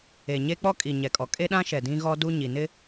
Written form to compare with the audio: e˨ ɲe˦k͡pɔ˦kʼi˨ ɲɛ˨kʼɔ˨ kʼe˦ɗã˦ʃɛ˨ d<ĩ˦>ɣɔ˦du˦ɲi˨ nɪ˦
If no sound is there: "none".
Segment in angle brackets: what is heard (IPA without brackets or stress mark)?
ĩ˦